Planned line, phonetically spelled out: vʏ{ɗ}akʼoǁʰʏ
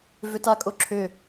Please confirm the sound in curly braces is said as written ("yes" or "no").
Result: no